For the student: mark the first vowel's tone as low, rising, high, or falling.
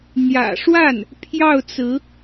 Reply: low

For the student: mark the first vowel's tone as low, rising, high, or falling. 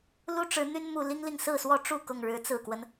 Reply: high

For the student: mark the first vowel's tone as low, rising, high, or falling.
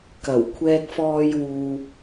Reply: low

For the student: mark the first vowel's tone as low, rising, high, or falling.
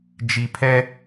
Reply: low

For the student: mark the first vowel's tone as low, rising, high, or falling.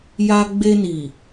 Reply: high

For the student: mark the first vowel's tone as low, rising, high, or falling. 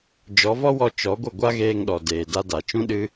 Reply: rising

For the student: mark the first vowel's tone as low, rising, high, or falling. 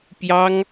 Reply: high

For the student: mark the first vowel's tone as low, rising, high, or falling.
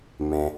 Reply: low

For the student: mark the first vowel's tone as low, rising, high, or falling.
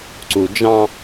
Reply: low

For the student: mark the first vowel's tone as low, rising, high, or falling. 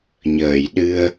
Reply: low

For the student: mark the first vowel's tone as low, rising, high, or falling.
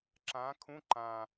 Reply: rising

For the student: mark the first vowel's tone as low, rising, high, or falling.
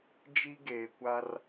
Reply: high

